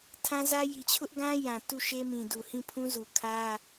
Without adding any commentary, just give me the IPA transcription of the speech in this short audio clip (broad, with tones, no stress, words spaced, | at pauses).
tʰã˦zä˦ ji˨t͡ɕʰʊ˦ʔɡã˦ jã˨ tu˦˨ʃe˦ mĩ˨du˨ hĩ˦˨pʰũ˦zu˨ kʰä˦